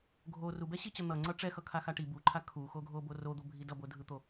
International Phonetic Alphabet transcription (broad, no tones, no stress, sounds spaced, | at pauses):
ɡʱ o r u b ɛ ɕ i t͡ɕ ʌ n̪ ʌ ŋ͡ǀ ʌ ʈ͡ʂ ɛ x ʌ kʰ a x a ʈ i b u ǃʰ a kʰ u x o ɡʱ o b o r o d̪ o bʱ i d ʌ b o dʱ ɯ t̪ o